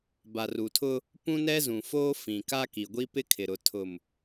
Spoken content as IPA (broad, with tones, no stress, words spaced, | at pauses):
ba˨r u˨tʰʊ˦ | pũ˦nɛ˦zũ˨foː˦ fĩ˨ka˦ki˨ɡʷi˦ pɪ˦kʰɪ˨ɾʊ˨ tʰʊ˨m